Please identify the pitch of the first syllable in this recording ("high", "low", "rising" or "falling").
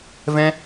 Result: high